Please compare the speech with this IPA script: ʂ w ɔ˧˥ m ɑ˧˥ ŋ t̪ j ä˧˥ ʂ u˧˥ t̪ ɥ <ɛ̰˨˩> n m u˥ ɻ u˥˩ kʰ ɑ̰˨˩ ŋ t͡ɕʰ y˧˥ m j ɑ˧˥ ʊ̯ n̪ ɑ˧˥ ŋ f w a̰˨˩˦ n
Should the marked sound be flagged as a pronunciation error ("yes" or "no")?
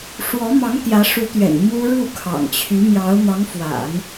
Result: no